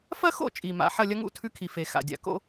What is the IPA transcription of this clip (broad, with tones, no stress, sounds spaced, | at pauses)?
f ɐ˥ x o̰˥˨ t͡ʃʼ i˩ m a̰˩ ħ ɐ˥˨ lʲ ɐ˥ ŋ ṵ˥˨ tʰ ʉ˥ kʰ i˩ f e˩ x a̰˩ dʲ a̰˩ k o̰˥